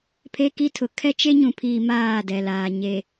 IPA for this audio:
pʰ e˦ k i˦ tʰ ʊ˨ kʰ ɛ˦ t͡ʃ e˦ ɲ ũ˨ pʰ iː˨ m aː˦˨ d ɛ˨ l aː˨ ɲ e˨

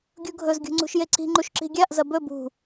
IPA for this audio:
ɡʲ u ɡʱ ɵ z ɡʲ ṳ ŋ͡ǀ ṳ ʃ j e ǀ i̤ ŋ͡ǃ u ʃ ǁ i̤ ɡʲ a ʔ z ɐ b ɵ b ṳ

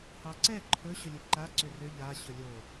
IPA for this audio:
h ɑ ǀ ɛ ǃʰ ɵ ɕ ɵ lʲ ɨ ǃ a ǀ ʏ r ʏ ʎ a ɕ ɵ lʲ o

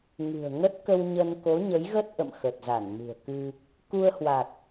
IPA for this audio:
ŋ ɨ̤˨˩ ə̯ ŋ ə˦˥ t̚ k ə˧ w ɲ ə˧ n k o˨˦ ɲ ə˨˦ j ɣ ə˦˥ t̚ ʔ ə̰˧˨ m x ə˨˩ t̚ z a˧˩ n m ɨ̤˨˩ ə̯ k ɨ˧ | k u˧ ə̯ h w a˨˩ t̚

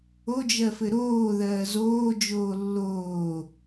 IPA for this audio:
o d͡ʒ ɜ f ɘ ɾ oː ð ɜː z oː d͡ʒ oː lː oː

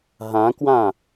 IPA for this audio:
ɦ ã k w ã

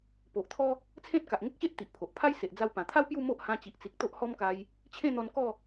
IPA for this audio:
p o˨ ʔ t̪ʰ ɔ˦ | t͡sʰ ẽ˦ t̚ k a˨ ʔ ŋ ə˦ k̚ ɕ e˦ ʔ t̪ i˨ ʔ pʰ o˨ ʔ pʰ a˦ j s e˨ ʔ d͡z a˧ w p ã˨˩ t̪ʰ a˦ w p j u˥˧ m o˦ ʔ h ã˧ t͡ɕ i˨ ʔ t͡s i˨ k̚ t̪ o˦ ʔ h ɔ˦ m k a˧ j | t͡ɕʰ ẽ˥˧ n̪ ɔ˧ n k ɔ˥˧

